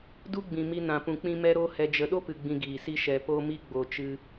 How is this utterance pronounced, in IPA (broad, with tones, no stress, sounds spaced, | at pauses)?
d u˦ ɡ͡b ĩ˨ m i˧ n ã˨ p ũ˨ k͡p ĩ˧ m ɛ˧ ɾ o˧ h ɛ˨ d͡ʒ ə˨ ɗ o˦ p ɨ˨ ɡ͡b ĩ˨ ɡ iː˨ s i˦ ʃ ɛ˨ p o˧ m i˧ ɡ͡b o˨ t͡ʃ ɨ˧